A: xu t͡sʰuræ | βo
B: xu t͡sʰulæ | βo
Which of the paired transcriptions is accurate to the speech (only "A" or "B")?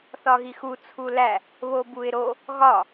B